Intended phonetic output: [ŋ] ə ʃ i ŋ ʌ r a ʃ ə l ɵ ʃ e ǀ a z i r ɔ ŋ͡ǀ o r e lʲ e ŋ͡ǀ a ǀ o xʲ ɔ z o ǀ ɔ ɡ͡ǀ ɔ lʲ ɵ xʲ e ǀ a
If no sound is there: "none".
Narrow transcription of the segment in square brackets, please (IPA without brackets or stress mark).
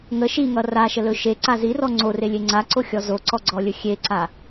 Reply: ŋ